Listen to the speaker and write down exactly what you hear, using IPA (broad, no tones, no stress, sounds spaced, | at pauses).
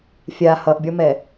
fʲ a h ʌ ʔ bʲ ɔ m ɛ